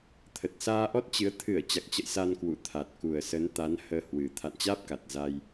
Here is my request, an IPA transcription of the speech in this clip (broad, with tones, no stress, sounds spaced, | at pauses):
t̪ʰ ə˨˩ t̚ s aː˧ ʔ ɔ˦˥ t̚ t͡ɕ ɨ˨˦ ə̯ t̪ʰ ɨ˧˩ ə̯ t͡ɕ a˨˩ k̚ t͡ɕ ə̰˧˨ j s a˧ n k w ṵ˧˨ t̪ʰ a˨˩ t̚ k u˨˩ ə̯ s ə˨˦ n t̪ a˨˦ n h əː˧ h w ɨ˨˩ t̪ʰ a̰˧˨ n t͡ɕ aː˦˥ p̚ k a˨˩ t̚ z a˧ j